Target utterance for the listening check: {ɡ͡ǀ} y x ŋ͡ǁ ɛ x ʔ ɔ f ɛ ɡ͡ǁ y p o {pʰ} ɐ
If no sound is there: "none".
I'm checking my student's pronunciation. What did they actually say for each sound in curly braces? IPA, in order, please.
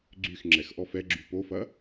ɡ͡ǀ, f

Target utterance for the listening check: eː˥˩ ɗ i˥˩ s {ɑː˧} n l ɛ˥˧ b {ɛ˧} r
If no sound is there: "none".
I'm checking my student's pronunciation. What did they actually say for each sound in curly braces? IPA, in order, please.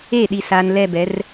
aː˧, ɛ˨˥

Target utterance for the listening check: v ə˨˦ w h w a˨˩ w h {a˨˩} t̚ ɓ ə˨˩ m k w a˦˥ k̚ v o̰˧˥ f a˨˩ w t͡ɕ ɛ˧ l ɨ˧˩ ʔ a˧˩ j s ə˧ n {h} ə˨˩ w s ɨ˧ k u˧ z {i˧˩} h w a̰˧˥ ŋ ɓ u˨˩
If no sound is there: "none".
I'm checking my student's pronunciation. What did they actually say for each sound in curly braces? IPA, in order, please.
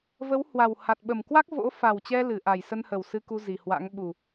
a˨˩, h, i˧˩

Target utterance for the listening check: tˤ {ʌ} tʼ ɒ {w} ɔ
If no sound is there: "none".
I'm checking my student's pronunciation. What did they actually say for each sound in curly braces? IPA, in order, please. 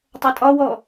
ʌ, w

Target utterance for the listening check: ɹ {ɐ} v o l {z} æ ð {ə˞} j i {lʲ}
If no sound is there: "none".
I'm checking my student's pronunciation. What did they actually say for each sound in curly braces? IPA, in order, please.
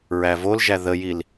æ, ʒ, ə, l

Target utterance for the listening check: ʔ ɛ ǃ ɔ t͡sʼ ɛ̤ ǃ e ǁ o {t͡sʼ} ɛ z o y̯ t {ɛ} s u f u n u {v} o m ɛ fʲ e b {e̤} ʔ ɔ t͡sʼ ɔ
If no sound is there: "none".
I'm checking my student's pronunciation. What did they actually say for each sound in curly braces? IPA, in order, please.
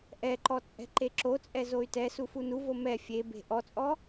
t͡sʼ, ɛ, v, e̤

